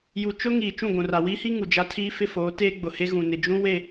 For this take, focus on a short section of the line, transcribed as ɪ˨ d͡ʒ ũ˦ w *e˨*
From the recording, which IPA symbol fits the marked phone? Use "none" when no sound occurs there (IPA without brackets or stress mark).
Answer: e˦˨